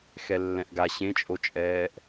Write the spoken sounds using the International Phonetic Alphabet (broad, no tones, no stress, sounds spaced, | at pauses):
x ɛ lː ɛ̃ ʔ ɡ a ɕ ẽ t͡ʃʼ o t͡ʃʼ ɛː ʔ